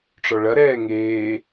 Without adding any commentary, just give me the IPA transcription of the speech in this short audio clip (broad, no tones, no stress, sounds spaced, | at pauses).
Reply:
ʈ͡ʂ ɔ ɭ ɐ ɾ ɛː ŋ eː